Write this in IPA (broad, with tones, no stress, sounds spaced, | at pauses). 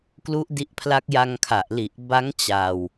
k l u˦˥ ʔ d i˦˥ ʔ pʰ l a˦˥ k̚ j a˧ ŋ kʰ a˨˩ ʔ l i˨˩ ʔ b a˦˥ ŋ t͡ɕ a˧ w